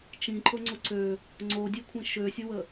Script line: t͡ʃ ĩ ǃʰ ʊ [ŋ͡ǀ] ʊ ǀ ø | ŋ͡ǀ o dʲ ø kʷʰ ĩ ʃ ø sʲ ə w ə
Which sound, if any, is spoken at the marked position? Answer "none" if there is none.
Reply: ŋ͡ǀ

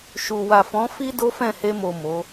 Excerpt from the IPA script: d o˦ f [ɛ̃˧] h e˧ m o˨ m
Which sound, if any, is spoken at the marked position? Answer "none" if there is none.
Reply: ɛ̃˦˨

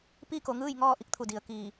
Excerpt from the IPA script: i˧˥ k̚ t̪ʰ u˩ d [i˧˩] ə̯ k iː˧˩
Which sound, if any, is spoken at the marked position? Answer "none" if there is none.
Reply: i˩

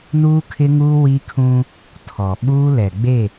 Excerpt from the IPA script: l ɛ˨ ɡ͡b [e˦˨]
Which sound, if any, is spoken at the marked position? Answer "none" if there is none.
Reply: e˦˨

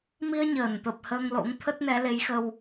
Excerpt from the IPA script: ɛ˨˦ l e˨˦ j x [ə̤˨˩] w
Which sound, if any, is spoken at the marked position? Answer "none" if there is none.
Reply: ə˧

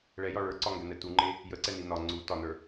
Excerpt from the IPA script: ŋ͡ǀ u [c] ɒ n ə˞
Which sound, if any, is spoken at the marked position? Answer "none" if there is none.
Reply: t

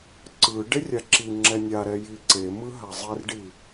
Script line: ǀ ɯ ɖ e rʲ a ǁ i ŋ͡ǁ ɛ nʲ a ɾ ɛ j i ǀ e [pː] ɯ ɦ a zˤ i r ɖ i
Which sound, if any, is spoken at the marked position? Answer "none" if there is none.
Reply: m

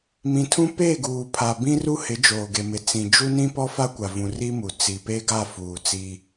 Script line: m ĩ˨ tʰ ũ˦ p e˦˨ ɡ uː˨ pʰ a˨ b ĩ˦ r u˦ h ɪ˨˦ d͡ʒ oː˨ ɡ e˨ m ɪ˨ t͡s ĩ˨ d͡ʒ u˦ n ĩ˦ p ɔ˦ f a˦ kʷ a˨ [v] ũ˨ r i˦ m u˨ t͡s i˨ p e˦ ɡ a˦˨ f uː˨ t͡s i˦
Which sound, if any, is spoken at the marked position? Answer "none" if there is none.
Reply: v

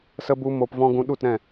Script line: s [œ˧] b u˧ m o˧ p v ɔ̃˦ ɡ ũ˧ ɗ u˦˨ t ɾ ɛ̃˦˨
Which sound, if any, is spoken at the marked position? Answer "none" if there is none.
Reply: ə˧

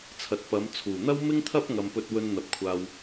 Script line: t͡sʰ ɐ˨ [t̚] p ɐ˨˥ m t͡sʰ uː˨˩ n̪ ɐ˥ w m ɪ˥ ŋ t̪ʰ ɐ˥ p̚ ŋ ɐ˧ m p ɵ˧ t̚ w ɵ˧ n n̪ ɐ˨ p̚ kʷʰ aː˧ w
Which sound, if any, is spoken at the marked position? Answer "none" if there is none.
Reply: t̚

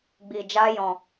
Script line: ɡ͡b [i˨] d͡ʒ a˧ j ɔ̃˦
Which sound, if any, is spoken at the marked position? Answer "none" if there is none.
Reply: i˨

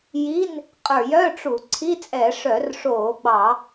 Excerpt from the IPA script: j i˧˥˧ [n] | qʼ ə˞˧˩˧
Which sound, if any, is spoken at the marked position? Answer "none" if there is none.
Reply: n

